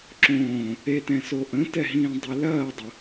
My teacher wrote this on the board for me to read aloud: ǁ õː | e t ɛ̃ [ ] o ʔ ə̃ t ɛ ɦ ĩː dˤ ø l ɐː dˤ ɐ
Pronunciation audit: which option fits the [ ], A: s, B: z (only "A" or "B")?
A